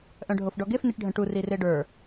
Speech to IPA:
ʔ œ̃ ɖʱ o f ɖ ɔ ɡ e f n i ʈ ɖʱ ə̃ ʈ u r i r e ɖ ə˞

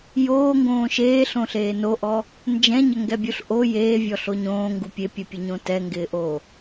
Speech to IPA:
j oː ŋ ɡ õː ʃ eː ɬ õ ɬ eː n o ʔ ɔ | n d͡ʒ ɛ̃ ɲ ə ŋ ɡ ɛ bʲ u ɬ ʔ o j eː vʲ ɔ ɬ o ɲ õː ŋ ɡ u pʲ e pʲ ɛ pʲ ɛ ɲ õ t ɛ ŋ ɡ ɪː ʔ oː

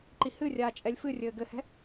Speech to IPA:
ǃ i h ɨ rʲ aː t͡ʃʼ ɛ lʲ f ɨ rʲ ɘː ɡ ɘ h ɛ̤

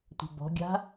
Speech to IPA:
tʷ ə̤ b ɔ̤ ɡʲ a̤

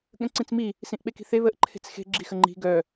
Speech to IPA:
ɠ ə̃ ǀ ĩ t͡s m i | s ĩ ʔ ɓ e k i̤ θ e β ə ʔ ǃʰ e̤ t͡s x e̤ ɡ͡ǁ i x ə ŋ͡ǃ i̤ ɡ œ

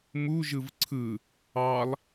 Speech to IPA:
m u ʒ ɯ v ǀʰ ɯ | ɑ lˠ

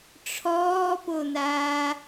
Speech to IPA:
ʈ͡ʂʰ ɔː p o n aː

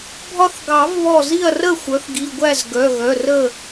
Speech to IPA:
bʱ ɒ˦ θ ɡ ɑ˨˩˦ v β ɔ˧˩ z i˥˨ ɐ̯ r ə˥˨ xʷ œ˩˥ θ ɡ i˩˧˩ ɡʷ æ˥˨ z ɡ œ˩˧˩ ɣ œ˩˧˩ r ə˥˨

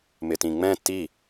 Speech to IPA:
m ɪ t ĩ ŋ͡m ɛ̃ t i

